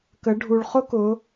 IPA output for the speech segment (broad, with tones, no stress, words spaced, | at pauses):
kə˩˧ ɖʱu˩ɭχʊ˥kʊ˩˧